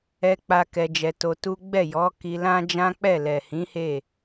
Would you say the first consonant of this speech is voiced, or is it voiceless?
voiceless